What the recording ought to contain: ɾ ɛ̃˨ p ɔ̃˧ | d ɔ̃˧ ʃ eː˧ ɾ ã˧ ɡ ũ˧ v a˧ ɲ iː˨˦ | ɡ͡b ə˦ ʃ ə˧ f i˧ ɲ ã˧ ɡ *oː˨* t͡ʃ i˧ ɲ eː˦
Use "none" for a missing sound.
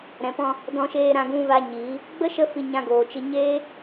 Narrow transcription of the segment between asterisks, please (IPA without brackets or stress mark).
oː˨